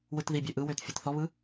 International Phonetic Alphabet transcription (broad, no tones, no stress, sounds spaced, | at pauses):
w ɯ t ð i bʲ ø ʔ ɯ w ø t fʲ ɯ t θ ɔ β ɯ